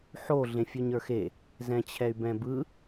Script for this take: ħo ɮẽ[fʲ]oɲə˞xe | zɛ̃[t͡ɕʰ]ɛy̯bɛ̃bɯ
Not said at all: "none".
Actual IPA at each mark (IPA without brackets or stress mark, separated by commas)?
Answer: fʲ, t͡ɕʰ